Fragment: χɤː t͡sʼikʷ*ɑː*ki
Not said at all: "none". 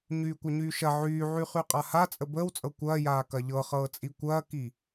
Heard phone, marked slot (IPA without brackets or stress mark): ɐː